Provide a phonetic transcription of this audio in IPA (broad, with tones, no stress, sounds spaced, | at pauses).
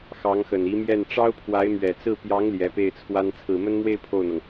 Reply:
x ɑ˧˥ ŋ x ə˨˩ n i˧˥ m j ɛ˥˩ n ʈ͡ʂ ɑ˥ ʊ̯ pʰ w a˧˥ ɪ̯ m ɥ ɛ˨˩ t͡s ɹ̩˥˩ p j ɑ˧˥ ŋ l j ɛ˧˥ p e˥˩ ɪ̯ t͡sʰ w a˥ n t͡sʰ ɹ̩˨˩ m ə˥ n m w e˥˧ ɪ̯ pʰ o˥˩ ʊ̯ n̪ ɤ˩ ŋ